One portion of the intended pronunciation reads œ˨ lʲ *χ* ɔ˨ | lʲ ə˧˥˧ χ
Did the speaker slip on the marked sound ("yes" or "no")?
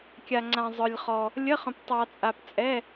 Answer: no